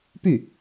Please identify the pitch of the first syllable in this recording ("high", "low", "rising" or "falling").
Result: falling